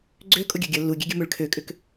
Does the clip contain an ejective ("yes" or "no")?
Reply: yes